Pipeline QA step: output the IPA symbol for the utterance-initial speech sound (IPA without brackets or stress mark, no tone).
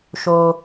ʃ